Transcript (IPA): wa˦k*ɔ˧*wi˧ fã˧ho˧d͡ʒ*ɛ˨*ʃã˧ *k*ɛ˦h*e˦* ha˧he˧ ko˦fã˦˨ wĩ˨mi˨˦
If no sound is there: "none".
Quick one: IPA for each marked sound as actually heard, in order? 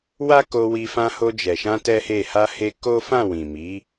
o˧, ɛ˨, t, e˦˨

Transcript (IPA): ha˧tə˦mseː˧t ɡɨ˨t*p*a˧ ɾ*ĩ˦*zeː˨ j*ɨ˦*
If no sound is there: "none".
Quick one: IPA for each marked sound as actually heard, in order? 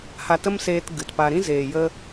p, ĩ˦, ə˦

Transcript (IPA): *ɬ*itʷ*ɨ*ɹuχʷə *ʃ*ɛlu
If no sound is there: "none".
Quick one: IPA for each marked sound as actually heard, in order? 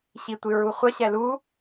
ɕ, ɨ, ɕ

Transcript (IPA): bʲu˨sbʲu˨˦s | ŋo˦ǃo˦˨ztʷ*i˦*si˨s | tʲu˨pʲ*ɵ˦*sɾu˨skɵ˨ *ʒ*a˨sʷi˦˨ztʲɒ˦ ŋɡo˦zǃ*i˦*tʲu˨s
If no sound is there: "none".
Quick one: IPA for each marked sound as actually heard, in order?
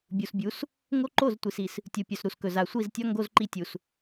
i˨, ɵ˨, z, i˦

